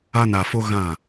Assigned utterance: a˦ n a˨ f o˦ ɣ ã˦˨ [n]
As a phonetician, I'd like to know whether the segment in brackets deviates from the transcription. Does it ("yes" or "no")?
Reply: yes